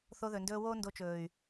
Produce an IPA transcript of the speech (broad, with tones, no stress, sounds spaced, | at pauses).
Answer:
θ o˧ ð ɵ˨ n d ɵː˧ w oː˦ n d o˧ t͡ʃ ɵː˨ y̯